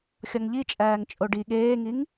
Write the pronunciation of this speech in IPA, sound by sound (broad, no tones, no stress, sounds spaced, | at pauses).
xʲ ɒ ŋ ʎ i t͡ʃʼ æː ŋ t͡ʃʼ o ɖ i ɠ eː ŋ i ŋ